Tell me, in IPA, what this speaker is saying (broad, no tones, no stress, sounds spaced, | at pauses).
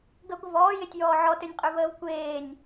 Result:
ɡ ə ɡʷ ə v ɔː j e tʲ j ɔː ʕ ɔ t ø nʲ qʼ ø v əː v kʷ eː nʲ